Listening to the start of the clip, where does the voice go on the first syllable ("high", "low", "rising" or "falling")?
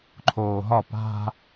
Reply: low